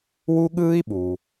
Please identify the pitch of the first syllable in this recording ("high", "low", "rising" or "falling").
high